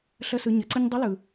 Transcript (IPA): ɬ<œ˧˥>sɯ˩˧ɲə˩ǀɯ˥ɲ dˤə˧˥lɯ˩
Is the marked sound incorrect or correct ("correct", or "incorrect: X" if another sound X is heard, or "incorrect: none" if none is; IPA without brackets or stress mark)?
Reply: incorrect: ə˧˥